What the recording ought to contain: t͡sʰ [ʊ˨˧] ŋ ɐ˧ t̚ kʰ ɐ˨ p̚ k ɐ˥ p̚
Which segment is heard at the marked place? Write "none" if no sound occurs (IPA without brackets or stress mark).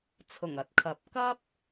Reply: ʊ˨˩